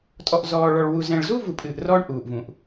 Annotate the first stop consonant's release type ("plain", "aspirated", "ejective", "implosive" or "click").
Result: ejective